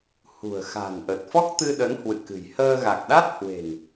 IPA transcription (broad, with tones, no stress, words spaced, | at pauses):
hṳ˨˩ə̯xa̤˨˩nʔə˨˩t̚ fɔ˦˥k̚t̪ɨ˧ɗə˨˦n hwɨ̰˧˨kɨ̤˨˩j həː˧ ɣa˨˩k̚ɗa˦˥t̚ hwe̤˨˩ŋ